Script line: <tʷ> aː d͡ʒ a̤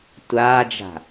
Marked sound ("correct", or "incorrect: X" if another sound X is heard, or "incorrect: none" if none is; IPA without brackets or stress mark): correct